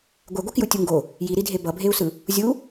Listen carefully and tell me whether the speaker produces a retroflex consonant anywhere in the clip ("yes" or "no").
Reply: no